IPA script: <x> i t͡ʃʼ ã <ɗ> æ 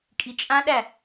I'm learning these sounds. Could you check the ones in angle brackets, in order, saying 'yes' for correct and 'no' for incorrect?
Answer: no, yes

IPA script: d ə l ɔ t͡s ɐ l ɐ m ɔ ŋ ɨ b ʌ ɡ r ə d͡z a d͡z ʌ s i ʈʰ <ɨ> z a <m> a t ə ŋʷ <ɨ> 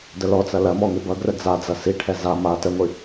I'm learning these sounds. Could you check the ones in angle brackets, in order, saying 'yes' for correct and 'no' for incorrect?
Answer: no, yes, yes

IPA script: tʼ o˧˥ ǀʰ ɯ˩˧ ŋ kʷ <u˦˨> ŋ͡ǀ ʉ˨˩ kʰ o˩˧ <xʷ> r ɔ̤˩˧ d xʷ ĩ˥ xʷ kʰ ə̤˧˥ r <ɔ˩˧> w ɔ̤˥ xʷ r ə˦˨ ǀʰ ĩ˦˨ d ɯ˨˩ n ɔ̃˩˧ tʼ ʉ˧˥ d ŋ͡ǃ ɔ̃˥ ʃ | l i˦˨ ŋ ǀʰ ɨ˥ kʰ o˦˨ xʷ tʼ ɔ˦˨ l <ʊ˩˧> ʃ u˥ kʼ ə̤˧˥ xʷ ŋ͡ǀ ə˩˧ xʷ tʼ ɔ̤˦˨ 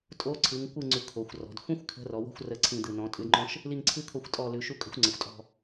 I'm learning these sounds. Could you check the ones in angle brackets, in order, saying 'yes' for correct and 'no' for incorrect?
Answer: no, yes, yes, no

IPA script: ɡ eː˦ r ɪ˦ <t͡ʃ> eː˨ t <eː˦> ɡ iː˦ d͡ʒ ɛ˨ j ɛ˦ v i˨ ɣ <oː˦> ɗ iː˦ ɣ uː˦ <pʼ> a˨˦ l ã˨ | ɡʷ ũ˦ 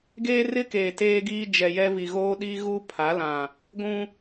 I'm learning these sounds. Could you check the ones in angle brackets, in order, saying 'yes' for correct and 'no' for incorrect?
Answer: no, yes, yes, no

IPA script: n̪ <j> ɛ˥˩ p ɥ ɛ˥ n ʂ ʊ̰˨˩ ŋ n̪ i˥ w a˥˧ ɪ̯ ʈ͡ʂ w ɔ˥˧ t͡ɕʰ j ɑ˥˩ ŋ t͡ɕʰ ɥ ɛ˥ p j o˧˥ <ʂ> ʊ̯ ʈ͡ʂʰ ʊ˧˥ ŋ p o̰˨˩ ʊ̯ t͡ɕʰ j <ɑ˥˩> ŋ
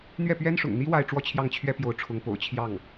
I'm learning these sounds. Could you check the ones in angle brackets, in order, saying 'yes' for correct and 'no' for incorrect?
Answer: no, no, yes

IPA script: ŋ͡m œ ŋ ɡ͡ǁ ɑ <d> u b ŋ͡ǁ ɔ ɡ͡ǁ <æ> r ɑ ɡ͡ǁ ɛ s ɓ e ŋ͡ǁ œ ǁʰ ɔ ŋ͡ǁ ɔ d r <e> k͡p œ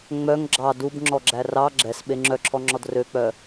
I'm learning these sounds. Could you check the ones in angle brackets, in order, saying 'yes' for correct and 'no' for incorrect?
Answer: yes, yes, no

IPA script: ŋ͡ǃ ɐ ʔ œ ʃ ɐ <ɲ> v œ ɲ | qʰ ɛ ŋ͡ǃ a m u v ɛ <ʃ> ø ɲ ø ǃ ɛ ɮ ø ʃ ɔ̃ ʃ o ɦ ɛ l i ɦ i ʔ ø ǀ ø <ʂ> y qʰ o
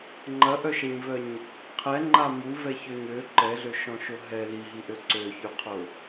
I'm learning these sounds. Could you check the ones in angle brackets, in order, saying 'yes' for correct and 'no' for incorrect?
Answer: yes, no, no

